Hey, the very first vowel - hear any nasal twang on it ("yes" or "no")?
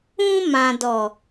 yes